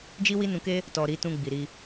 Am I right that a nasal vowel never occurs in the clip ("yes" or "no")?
no